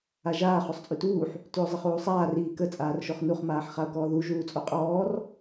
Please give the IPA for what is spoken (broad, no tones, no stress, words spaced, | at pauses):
aʒaː χosˤt͡sʼytuːħ | tyo̯zˤəχuːsˤaːr iːkə t͡sʼaːrʃoχnuχ maːħχao̯kɔːðu ʒuːt͡sʼoqʼɔːr